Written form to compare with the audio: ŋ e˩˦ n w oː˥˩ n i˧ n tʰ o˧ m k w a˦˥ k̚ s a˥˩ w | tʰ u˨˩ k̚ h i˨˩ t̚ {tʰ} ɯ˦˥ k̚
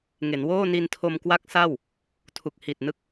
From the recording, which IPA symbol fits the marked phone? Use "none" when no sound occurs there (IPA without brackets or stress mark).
n